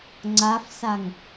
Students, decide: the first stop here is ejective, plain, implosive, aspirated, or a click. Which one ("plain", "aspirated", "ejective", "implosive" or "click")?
click